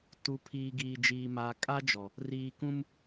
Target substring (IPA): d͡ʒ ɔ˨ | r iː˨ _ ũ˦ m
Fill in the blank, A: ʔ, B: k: B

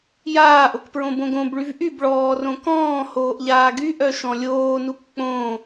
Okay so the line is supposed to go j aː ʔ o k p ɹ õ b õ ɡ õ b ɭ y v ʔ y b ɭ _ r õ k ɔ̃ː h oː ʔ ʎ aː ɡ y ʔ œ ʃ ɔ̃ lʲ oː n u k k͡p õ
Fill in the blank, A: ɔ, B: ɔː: B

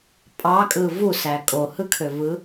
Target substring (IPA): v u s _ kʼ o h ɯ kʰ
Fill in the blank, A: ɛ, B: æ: B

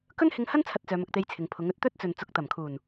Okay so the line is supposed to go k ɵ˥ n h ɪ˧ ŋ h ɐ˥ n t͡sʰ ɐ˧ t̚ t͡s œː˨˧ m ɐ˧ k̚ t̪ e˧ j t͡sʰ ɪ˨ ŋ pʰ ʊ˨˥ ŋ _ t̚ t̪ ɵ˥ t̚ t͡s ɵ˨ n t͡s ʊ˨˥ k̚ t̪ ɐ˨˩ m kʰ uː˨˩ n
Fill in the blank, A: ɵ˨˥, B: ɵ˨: A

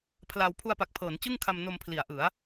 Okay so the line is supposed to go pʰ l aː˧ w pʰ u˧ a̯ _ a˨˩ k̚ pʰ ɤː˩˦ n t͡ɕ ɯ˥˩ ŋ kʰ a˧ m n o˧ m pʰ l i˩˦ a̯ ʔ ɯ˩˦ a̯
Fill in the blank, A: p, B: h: A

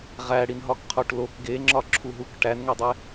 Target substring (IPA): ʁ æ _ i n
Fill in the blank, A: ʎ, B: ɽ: B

